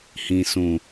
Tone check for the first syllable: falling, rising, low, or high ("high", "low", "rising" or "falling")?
low